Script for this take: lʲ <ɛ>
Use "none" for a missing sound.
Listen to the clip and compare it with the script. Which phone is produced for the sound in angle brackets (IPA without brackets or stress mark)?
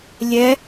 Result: ɛ